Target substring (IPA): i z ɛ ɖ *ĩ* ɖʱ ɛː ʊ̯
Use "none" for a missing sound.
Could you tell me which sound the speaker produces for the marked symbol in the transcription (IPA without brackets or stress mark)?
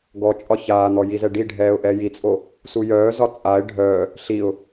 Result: i